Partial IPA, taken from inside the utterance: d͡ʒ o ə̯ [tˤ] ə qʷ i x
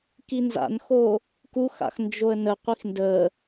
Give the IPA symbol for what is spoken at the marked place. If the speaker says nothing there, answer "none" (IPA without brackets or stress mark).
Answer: n